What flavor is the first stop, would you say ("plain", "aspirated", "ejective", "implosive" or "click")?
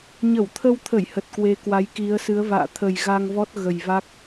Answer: aspirated